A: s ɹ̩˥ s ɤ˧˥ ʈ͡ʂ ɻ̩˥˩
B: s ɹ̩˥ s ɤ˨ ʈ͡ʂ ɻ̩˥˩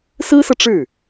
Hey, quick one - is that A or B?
B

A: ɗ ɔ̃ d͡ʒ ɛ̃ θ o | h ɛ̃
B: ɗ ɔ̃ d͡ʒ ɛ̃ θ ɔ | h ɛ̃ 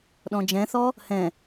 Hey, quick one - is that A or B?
B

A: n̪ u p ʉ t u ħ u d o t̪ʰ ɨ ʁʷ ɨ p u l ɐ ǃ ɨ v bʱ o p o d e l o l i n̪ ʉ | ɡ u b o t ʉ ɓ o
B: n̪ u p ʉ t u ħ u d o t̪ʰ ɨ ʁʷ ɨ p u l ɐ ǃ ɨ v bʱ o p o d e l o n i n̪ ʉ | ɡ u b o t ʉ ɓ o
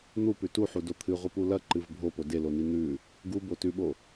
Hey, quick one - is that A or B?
B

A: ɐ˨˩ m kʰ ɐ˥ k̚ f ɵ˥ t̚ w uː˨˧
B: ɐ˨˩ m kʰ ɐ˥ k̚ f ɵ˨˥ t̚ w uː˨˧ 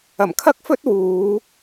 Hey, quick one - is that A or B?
A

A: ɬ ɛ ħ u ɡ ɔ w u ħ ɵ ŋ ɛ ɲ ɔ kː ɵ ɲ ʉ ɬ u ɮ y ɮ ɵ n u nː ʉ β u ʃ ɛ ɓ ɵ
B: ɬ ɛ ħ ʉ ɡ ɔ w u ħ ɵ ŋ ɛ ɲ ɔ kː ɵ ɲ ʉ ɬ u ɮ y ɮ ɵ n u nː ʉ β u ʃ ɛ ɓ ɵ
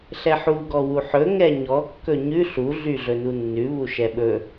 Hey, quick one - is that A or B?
A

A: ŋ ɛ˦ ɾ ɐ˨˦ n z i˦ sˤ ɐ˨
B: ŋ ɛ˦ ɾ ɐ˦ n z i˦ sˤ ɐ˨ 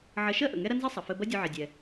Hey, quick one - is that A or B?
B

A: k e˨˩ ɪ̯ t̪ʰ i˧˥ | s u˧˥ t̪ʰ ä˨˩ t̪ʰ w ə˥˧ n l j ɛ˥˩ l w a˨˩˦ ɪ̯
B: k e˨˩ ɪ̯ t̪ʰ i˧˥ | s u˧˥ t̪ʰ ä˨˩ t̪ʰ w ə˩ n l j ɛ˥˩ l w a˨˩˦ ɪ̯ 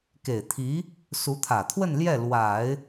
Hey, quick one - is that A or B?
A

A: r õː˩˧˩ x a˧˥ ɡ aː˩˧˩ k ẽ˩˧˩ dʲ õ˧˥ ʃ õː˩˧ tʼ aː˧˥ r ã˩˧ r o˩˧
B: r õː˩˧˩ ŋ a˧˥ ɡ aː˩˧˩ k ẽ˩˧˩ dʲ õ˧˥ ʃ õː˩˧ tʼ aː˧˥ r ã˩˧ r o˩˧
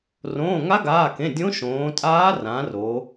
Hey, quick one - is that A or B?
B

